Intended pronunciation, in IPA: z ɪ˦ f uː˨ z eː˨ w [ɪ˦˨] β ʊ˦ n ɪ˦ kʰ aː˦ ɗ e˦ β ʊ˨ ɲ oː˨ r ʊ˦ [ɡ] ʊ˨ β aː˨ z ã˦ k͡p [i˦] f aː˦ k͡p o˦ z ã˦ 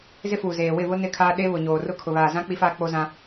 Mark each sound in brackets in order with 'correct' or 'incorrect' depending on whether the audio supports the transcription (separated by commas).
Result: correct, incorrect, correct